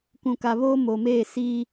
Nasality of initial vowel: nasal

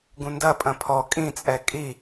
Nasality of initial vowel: nasal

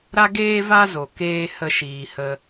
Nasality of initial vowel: oral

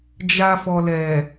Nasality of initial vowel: oral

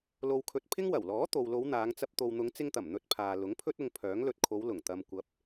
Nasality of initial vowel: oral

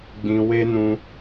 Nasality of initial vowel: nasal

